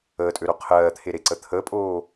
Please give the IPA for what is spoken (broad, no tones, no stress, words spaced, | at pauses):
əːtʼøɾo qʰɜːt̪ʰeɾe ǀət̪ʰəpʼoː